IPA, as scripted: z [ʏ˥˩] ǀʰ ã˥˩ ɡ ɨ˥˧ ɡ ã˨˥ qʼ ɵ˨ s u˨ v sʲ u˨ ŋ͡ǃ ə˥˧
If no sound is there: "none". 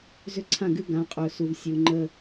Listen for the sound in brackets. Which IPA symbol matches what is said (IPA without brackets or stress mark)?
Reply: ʏ˥˩